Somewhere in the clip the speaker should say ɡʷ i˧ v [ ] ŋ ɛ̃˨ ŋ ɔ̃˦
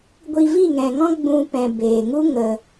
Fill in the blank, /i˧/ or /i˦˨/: i˦˨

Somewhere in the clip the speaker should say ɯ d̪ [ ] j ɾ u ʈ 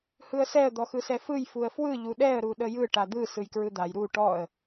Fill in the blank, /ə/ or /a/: a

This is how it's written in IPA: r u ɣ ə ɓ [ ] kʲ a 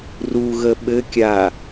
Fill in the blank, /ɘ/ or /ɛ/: ɘ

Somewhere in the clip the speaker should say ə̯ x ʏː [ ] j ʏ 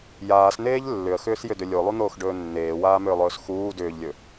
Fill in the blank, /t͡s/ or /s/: s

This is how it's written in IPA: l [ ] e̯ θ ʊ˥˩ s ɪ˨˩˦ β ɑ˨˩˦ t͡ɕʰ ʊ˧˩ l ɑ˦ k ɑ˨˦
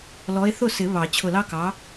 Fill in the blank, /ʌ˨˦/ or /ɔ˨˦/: ɔ˨˦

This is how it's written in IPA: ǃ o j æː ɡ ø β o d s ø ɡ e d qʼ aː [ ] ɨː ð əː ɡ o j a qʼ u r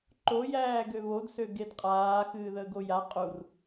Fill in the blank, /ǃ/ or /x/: x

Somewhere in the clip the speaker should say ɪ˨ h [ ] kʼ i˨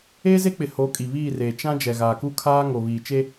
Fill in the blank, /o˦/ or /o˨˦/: o˨˦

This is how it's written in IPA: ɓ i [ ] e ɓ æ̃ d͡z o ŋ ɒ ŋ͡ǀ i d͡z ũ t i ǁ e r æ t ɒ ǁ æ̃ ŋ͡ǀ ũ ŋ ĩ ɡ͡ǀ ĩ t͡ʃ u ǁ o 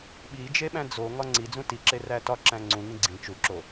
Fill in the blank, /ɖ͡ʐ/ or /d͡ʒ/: d͡ʒ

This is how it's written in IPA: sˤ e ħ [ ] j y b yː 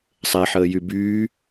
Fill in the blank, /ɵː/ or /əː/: əː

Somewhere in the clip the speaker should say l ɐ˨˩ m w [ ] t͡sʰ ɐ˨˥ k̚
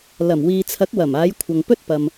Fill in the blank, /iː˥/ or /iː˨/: iː˨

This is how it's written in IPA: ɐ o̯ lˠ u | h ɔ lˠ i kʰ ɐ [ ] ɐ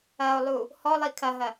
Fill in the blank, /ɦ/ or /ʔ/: ɦ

